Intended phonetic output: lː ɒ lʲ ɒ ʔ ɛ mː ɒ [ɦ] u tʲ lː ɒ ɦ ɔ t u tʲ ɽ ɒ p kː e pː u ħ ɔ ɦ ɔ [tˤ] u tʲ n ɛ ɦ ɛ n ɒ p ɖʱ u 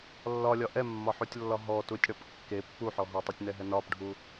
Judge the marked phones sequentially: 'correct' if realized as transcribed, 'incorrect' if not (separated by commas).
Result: incorrect, correct